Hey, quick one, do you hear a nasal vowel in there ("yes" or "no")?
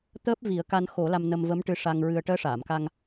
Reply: no